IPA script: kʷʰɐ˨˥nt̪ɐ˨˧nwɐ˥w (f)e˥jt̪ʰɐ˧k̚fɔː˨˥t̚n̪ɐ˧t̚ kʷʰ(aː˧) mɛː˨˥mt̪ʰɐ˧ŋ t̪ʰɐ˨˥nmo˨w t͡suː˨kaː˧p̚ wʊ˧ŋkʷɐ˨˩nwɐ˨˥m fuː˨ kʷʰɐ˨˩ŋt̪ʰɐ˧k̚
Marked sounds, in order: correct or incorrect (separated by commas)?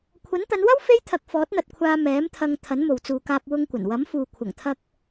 correct, correct